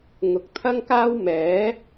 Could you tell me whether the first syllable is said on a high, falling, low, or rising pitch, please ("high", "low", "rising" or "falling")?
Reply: rising